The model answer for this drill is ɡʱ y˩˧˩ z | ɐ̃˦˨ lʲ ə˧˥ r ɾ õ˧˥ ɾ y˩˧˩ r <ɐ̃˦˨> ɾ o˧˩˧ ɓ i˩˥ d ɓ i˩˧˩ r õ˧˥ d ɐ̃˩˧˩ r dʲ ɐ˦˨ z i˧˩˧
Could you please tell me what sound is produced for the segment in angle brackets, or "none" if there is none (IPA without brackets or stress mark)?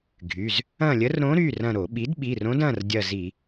ɐ̃˦˨